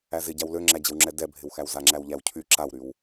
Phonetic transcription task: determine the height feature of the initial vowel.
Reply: low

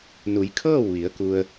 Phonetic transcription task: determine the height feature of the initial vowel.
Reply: high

